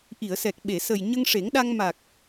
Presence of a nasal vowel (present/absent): absent